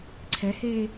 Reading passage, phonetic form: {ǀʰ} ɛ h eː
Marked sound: correct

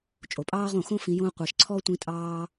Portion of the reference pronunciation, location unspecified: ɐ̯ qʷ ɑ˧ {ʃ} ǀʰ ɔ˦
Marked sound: correct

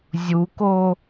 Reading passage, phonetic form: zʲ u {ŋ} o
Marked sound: incorrect: k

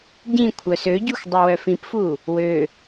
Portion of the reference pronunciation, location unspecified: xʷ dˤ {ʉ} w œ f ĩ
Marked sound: incorrect: u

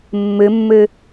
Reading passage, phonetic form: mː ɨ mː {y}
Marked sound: incorrect: ɨ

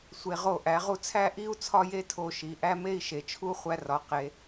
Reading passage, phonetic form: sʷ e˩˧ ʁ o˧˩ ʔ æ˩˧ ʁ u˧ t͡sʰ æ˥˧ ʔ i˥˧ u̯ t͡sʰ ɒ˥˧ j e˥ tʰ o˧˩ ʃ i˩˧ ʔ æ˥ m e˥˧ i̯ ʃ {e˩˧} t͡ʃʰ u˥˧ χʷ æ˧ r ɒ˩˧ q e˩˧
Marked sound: correct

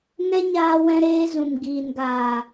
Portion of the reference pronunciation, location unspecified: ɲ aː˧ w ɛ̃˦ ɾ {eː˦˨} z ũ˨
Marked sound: incorrect: eː˦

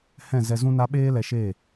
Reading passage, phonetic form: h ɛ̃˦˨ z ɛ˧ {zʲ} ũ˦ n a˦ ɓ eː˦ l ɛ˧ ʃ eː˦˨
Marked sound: incorrect: z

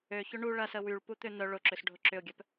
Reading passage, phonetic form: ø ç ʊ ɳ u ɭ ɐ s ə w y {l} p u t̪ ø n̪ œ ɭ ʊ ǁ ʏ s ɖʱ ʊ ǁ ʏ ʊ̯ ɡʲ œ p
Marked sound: incorrect: ɭ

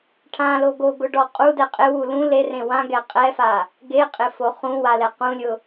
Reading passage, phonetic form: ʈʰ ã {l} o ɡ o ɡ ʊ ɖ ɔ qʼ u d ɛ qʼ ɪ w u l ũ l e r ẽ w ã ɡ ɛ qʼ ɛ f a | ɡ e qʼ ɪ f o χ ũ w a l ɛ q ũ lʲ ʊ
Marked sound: correct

